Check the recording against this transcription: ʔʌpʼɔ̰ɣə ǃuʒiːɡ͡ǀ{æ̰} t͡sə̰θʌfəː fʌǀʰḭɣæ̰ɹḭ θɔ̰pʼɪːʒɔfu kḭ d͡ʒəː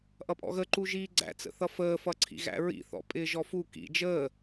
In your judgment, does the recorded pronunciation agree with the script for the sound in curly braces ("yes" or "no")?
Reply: yes